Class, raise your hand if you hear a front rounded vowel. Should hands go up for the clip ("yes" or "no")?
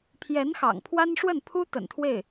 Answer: no